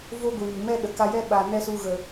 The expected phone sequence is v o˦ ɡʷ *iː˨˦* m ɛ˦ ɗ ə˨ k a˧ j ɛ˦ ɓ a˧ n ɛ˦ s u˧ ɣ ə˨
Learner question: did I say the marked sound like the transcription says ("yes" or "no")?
no